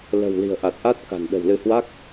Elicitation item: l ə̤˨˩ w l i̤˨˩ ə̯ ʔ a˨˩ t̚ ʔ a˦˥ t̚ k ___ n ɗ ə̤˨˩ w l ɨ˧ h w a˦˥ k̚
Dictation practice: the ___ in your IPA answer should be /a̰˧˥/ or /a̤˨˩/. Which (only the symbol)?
a̤˨˩